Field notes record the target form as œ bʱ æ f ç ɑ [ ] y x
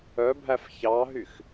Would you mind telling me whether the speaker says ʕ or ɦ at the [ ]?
ɦ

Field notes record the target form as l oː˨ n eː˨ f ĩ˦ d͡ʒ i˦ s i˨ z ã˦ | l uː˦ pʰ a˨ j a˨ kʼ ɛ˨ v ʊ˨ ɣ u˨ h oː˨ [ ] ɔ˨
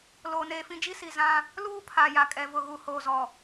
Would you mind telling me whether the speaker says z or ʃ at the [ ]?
z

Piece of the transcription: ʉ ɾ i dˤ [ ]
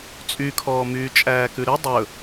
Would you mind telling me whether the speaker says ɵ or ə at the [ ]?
ɵ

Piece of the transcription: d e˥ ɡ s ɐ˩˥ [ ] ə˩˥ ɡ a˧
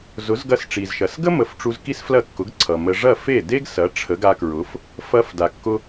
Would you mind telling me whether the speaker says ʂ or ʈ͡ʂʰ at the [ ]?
ʈ͡ʂʰ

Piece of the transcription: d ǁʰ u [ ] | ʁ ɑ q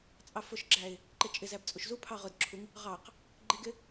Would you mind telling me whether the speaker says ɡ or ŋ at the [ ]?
ŋ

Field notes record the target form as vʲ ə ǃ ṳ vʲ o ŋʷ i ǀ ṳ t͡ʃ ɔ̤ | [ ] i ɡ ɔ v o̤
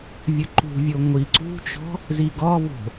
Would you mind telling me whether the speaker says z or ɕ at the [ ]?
z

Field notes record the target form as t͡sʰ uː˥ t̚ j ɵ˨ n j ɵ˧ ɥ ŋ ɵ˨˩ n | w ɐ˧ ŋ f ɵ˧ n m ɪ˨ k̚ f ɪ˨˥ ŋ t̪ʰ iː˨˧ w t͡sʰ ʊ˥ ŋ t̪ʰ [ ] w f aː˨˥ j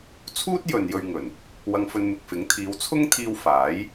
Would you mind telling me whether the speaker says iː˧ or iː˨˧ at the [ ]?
iː˧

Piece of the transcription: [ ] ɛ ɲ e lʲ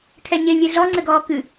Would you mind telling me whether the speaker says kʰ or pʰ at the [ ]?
kʰ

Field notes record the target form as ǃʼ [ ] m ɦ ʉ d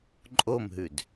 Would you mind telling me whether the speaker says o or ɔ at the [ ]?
o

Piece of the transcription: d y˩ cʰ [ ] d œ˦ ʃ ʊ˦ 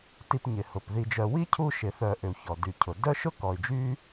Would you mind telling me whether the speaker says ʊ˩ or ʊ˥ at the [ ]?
ʊ˩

